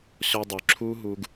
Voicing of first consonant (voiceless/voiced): voiceless